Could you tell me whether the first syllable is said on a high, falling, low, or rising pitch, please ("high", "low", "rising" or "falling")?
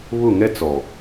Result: falling